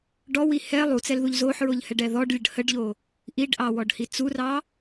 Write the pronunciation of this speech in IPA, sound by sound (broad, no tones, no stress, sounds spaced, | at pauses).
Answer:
ɖ ɔ w i h ɛ lˠ u t͡s ɛ l ð u ʎ z o ħ ɹ o ʎ h ɛ ɖ ɛ ð ɔ ɖ lʲ ə ɖ h ə ɖ ʎ o | ʔ i ɖ ʔ ɑ w ɔ ɖ h i t͡s u r ɑ